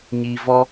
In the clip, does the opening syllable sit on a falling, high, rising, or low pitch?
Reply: low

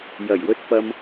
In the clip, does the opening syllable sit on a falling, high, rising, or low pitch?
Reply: low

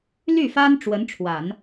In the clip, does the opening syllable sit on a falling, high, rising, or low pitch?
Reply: falling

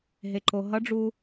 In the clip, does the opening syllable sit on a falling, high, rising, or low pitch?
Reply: low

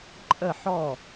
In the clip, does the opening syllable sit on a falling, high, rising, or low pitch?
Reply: falling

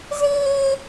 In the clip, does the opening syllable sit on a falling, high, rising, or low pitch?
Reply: high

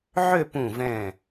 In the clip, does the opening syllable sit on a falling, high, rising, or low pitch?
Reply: falling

